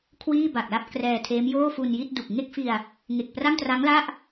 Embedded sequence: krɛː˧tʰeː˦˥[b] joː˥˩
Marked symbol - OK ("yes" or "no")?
no